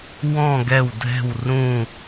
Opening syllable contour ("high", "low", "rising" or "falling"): falling